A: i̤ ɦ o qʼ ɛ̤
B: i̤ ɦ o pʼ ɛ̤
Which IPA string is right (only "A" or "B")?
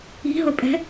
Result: B